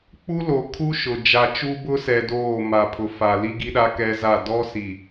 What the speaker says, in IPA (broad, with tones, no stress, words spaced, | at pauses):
k͡pu˦lo˨kʰu˦ ʃʊ˨ d͡ʒa˨t͡ʃu˦bʊ˦sɛ˨ doː˦˨ma˨ pʰʊ˨fa˨ li˦ɡi˦ɗa˦ kɛ˦za˦˨ dɔ˦si˨